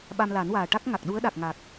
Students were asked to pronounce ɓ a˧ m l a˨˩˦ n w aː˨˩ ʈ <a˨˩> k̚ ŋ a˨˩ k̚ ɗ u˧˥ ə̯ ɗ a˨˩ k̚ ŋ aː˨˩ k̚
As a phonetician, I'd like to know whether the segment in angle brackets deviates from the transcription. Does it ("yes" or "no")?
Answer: yes